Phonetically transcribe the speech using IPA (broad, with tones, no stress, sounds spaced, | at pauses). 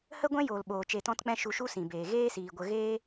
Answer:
h ə˦ ɡʷ ɛ̃˦ j oː˨ l ɓ oː˨ t͡ʃ e˧ t ɔ̃˦ t k͡p ɛ̃˦ ʃ u˧ ʃ u˦ s ĩ˨ b eː˨ ɣ eː˦ s iː˨ ɡʷ ə˧ ɣ eː˦